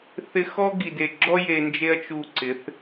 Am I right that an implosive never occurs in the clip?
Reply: yes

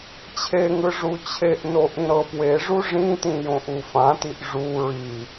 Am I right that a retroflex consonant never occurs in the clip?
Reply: no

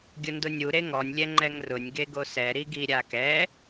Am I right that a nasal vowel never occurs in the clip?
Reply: yes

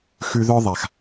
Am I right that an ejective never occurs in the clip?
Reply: yes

